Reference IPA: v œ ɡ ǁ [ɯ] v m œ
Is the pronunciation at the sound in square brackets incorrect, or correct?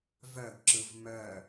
correct